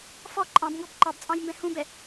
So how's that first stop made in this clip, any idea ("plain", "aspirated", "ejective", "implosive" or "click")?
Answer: click